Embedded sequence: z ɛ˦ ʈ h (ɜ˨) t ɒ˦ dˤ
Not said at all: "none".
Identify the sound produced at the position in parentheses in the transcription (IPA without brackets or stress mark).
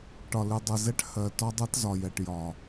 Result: ɜ˨